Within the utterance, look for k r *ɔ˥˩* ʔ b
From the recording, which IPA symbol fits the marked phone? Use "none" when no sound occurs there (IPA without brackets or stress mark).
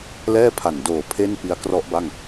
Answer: ɔ˦˥